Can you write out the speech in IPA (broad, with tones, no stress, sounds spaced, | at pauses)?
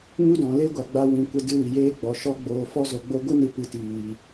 ɲ u˦ d ɔ̃˨ l e˦ ɡʷ a˨ ɡ͡b a˧ w ĩ˨ kʷ ə˧ d ɨ˧ w i˨ j eː˦ ɡ͡b ɔ˨˦ ʃ ɔ˦ ɡ͡b oː˧ f ɔ˦ z o˧ ɡ͡b o˦ ɡʷ ɨ˦ n ɨ˨ p ɨ˨ t iː˨